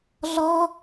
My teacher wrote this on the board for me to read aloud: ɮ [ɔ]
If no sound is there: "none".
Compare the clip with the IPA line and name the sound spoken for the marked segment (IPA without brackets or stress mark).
ɔ